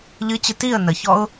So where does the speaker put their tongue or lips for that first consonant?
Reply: palate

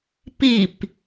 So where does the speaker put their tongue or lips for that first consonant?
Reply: lips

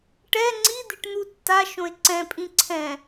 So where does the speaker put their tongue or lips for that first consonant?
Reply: retroflex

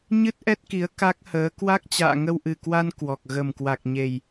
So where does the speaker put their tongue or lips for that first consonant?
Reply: palate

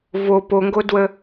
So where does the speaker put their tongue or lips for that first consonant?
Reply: lips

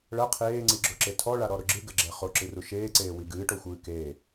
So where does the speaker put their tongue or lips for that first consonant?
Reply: retroflex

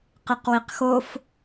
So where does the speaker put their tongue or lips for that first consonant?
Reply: uvula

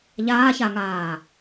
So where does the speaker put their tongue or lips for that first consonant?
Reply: palate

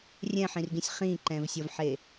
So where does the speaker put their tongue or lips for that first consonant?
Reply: tongue tip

